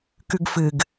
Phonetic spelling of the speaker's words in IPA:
k ʉ ɡ f ɨ ɡ

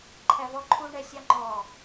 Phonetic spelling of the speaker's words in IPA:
ǃʰ æ v ɔ ǃʰ u ɳ ɛ sʲ ɑ ŋ͡ǃ ɔ

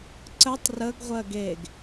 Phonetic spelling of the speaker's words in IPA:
ǀ ə tˤ r ə ɡ ʁʷ ɜ ɡ e ɡ

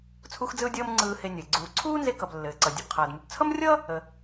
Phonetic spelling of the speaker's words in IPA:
t͡sʰ u˧ x d͡z ɯ˧ ʊ̯ dʲ ʌː˧ m ŋ͡ǀ ɯː˧ h e˧ nʲ ə˩ ɪ̯ ɡ͡ǀ uː˩ ǀʰ uː˥ n z e˧ k ʌ˩ b lː ɘː˩ ǀ ʌ˩ dʲ ɘ˩ b qʰ ʌː˩ d m u˩ b t͡sʰ ʌ˥ m rʲ ʌ˥ | ə˩

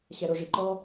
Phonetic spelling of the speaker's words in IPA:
ɕ ɛ ɾ o ʐ i ǃ ɔ

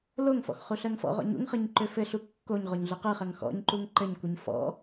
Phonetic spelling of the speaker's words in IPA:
l o ŋ f ɔ̰ x χ u ɬ ɜ ŋ f ɔ̰ ʁ ɔ̰ ɲ ṵ ŋ χ ɯ ɲ ǃ ø f ɘ ɬ u kː o ɲ ʁ o ɲ ɮ ɯ q ɯ χ ɜ ŋ x ɔ̰ ɲ ǃ u ŋ ǃ ɘ ɲ kʷ ɘ ɲ f ɔ̰

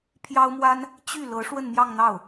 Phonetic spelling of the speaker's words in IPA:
pʰ j ɑ˥ ʊ̯ m w a˥ n | t͡ɕ y˥˩ l ɤ˧˥ ʂ w ə˥˧ n m j ɑ˥˧ ŋ n̪ ɑ˥˩ ʊ̯

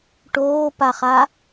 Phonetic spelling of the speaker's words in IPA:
ʈ oː p a χ a

